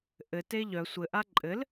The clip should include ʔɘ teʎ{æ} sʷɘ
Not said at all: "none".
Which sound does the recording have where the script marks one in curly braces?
œ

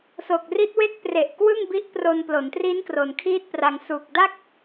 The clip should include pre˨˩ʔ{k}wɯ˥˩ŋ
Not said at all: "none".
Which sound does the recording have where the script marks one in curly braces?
k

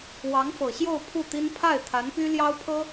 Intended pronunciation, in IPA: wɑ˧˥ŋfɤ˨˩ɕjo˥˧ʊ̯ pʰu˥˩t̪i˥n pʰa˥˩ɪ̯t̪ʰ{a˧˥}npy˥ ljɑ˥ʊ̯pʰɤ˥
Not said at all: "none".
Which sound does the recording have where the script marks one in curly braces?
a˧˥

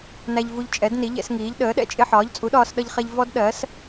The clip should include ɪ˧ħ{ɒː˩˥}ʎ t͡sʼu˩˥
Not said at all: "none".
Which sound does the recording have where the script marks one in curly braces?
ɒː˩˥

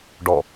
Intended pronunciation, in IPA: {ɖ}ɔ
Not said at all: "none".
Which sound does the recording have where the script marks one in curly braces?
ɖ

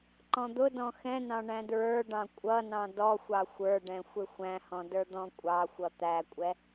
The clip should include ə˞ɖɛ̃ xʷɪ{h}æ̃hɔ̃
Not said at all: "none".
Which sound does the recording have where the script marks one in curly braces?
xʷ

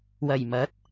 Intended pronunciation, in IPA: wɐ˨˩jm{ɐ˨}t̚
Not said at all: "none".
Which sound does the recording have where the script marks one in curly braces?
ɐ˨˥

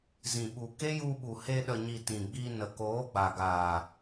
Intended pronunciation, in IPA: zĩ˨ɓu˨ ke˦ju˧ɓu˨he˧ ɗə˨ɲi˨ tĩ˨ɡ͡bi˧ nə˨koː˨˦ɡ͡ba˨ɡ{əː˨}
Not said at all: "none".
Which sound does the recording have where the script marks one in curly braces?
aː˨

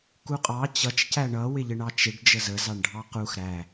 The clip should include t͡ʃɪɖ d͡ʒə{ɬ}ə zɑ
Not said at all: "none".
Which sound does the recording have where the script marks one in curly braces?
z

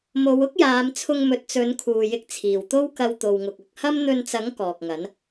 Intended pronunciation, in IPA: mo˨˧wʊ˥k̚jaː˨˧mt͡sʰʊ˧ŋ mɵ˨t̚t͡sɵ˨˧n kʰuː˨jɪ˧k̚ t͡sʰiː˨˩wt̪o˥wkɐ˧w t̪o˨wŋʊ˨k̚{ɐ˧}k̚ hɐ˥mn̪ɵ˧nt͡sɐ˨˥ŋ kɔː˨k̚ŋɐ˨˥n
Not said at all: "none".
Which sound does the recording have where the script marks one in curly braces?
ɐ˧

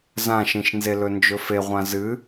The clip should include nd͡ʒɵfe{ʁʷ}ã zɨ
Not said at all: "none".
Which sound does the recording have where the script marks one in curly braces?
ʁʷ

